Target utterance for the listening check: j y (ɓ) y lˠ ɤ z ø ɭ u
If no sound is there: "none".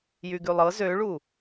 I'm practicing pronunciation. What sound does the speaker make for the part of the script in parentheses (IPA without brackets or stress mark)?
ɡ